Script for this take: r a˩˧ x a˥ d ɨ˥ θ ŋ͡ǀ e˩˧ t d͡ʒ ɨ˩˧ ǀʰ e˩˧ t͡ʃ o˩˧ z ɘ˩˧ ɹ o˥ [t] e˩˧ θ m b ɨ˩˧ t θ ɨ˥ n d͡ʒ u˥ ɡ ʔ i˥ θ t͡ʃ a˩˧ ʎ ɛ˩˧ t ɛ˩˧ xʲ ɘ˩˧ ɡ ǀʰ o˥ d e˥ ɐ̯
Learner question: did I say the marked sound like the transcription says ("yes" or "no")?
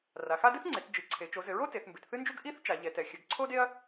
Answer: yes